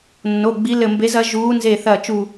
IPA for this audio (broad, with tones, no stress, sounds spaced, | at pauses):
nː o˩˧˩ ɡ͡b i˨˦ l ɘ˧˩ m b e˨˦ z ɐ˨˦ ʒ uː˨˦ n z e˧˩ θ ɐ˧˩ t͡ʃ u˧˩